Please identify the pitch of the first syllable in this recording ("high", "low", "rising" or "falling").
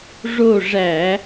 falling